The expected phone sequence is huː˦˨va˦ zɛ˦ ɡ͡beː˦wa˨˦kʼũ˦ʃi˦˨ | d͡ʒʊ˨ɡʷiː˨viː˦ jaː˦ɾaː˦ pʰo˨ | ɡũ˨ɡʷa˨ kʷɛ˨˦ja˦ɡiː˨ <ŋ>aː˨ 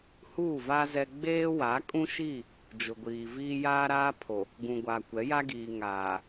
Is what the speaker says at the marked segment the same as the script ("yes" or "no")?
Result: yes